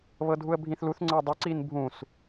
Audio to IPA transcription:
βɤdʱuə̯bʱĩθluθ ŋ͡ǀɤdˤi ǀinbʱũs

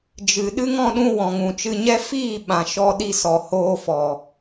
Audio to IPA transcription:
d͡ʒɨ˨ɗɨ˦ŋ ɔ̃˧ɗũ˧ wɔ̃˨ŋũ˨t͡ʃɨ˧ɲɛ˦ fiː˦˨ɓã˨ ʃɔ˧ ɗi˧sɔ˨hoː˧fɔ˨

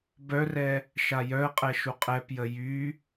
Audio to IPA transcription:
bœrɛ | ʃajœə̯qʼɛ ʃuqʼɛpjə jy

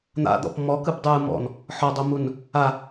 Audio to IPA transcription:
n̪a̰d̪ɔ̰p mɔkɯbdˤɯː mɔ̰n | ħɔdˤomun | a

